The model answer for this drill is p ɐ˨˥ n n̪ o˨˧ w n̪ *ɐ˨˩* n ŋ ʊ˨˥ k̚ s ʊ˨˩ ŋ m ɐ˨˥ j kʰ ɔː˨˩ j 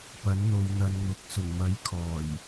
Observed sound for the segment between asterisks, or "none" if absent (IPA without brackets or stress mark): ɐ˧